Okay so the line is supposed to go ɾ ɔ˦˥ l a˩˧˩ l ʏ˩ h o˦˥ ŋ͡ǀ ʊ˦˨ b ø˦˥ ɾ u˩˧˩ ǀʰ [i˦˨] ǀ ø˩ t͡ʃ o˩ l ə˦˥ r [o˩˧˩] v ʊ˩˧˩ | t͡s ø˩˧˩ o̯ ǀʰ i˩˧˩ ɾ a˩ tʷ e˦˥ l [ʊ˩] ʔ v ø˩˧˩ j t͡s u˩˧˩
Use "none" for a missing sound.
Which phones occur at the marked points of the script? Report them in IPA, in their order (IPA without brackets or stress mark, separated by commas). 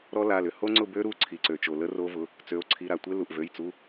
i˩, o˦˥, u˩